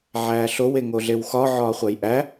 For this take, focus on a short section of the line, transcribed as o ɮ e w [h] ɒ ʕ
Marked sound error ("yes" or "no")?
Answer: yes